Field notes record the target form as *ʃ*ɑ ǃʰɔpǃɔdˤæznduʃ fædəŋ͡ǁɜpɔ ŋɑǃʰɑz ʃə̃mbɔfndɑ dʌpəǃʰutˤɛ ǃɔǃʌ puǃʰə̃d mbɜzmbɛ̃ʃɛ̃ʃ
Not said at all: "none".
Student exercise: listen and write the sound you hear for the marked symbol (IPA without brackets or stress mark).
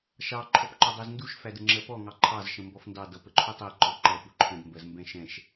ʃ